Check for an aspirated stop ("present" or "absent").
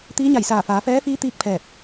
present